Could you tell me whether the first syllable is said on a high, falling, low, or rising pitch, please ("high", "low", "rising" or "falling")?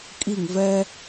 falling